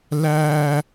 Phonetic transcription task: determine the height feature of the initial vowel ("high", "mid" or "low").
low